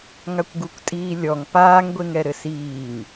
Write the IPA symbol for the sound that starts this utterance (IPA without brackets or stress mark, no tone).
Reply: ŋ